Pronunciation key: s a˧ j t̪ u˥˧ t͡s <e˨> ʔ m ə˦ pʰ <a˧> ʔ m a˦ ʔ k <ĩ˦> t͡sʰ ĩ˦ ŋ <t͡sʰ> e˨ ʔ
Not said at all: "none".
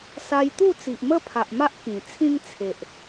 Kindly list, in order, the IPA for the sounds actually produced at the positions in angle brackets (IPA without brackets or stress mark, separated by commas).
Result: i˨, a˨, ĩ˨˩, t͡sʰ